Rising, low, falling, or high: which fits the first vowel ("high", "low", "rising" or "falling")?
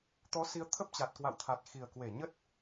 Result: rising